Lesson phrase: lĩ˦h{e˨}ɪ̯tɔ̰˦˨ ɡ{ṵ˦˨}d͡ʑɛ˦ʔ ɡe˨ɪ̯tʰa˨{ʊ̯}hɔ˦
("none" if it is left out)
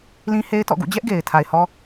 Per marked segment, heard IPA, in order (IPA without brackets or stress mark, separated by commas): e˦, ṵ˦˨, ɪ̯